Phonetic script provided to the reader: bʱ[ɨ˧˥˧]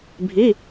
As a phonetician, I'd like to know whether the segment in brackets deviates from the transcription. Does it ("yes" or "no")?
yes